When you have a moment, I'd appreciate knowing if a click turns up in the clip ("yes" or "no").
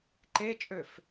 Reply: yes